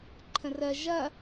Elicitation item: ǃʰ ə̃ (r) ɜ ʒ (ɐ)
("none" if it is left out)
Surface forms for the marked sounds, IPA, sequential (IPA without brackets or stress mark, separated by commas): r, ɐ